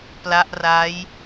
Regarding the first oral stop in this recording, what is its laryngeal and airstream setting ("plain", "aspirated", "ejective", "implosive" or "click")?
plain